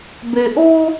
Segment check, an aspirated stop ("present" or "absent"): absent